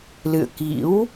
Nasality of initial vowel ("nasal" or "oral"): oral